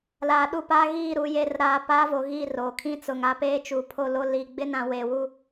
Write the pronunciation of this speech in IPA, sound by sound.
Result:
l aː˨ ɗ u˦˨ p aː˦ ɣ iː˦˨ ɾ u˨ j eː˨ r ɾ aː˨ p aː˦ v o˨ ɣ iː˦˨ r oː˨ kʰ ĩ˦ t͡s ʊ˨ ŋ a˦ p eː˦ t͡ʃ u˨ pʰ o˦˨ l o˦ l iː˨ ɡ͡b ɪ˦ n ã˨ w eː˨ w u˦

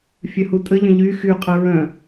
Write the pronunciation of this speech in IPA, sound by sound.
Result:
fʲ œ h u tʼ ə ʎ ə̃ ʎ y x y qʼ ə ɹ œ̃

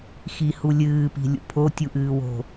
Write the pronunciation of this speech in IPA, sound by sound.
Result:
x i h u lʲ ɨː p i̤ lʲ ṵ pʰ o tʲ u ʔ ɨː w o̤

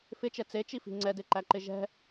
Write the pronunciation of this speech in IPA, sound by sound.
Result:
f ɪ t͡ʃ ɛ t͡s e t͡ʃ i f i̤ ŋ͡ǀ ɛ d e ǃ æ ǃ ɪ ʒ ɛ̤

